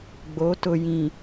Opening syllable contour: rising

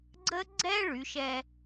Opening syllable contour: high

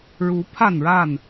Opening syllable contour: rising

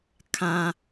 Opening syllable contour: low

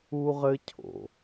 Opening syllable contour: high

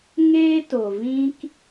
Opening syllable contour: high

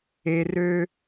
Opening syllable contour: low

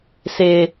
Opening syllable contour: high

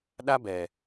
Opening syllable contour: high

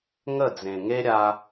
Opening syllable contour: falling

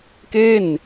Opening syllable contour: falling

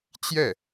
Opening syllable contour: falling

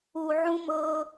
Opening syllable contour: low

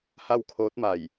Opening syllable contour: falling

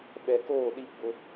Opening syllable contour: low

